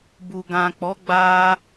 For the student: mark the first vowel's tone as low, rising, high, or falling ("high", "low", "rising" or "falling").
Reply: low